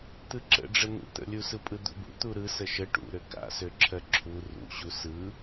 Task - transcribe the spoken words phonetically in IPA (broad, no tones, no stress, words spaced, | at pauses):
t̪ɯǁə̰ɖ͡ʐən̪ṵ t̪ə̰lʲusɯpʼɯ d̪ṵbṵ t̪uɾɯ səʃə ʈṵ ɾøka̰søǁʰɜ ǁʰu rṵɕu sɯ